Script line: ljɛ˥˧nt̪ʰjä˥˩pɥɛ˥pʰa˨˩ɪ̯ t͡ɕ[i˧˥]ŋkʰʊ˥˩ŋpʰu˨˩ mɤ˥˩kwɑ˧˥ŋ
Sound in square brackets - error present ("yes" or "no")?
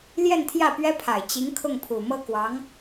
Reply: no